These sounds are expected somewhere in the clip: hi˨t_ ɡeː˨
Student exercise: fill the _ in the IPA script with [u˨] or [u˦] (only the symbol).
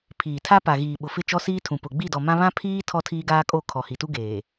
u˦